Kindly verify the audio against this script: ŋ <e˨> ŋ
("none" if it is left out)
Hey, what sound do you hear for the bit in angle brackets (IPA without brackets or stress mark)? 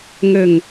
ɘ˨